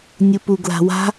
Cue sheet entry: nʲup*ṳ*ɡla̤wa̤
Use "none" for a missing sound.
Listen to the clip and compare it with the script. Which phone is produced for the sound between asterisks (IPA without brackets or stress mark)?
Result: u